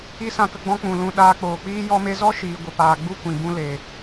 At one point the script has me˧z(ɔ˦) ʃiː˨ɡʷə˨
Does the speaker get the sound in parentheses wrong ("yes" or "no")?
no